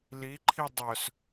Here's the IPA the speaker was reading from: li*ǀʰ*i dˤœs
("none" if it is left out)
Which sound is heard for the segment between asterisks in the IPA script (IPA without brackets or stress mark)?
ǃʰ